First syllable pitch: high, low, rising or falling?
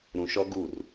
low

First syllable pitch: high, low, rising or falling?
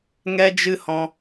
high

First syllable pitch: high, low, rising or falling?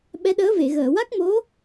rising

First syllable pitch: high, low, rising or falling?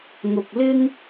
low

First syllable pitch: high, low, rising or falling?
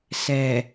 low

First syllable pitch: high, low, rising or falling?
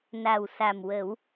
low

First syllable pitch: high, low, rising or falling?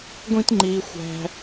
high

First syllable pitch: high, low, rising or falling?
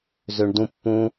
low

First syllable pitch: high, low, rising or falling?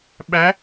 rising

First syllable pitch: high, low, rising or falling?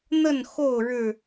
falling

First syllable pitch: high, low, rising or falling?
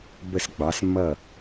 falling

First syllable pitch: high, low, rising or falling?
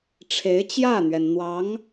rising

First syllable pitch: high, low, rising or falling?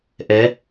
rising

